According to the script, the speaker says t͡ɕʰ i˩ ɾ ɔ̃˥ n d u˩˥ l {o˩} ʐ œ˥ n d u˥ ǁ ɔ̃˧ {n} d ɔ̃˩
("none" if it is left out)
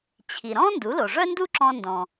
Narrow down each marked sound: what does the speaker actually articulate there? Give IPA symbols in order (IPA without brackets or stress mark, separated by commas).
o˩, n